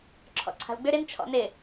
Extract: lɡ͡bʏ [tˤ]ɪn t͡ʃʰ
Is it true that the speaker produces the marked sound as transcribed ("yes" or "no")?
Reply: no